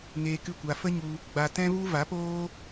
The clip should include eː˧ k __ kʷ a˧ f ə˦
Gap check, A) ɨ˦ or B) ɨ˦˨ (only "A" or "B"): B